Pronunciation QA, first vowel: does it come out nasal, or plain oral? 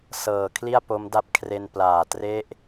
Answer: oral